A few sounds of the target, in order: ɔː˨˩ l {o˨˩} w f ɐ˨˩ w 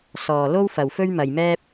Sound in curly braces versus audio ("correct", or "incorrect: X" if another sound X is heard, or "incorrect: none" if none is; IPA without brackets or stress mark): incorrect: o˥